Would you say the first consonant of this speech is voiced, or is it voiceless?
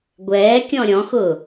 voiced